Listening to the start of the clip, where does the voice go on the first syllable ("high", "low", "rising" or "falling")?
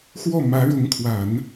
falling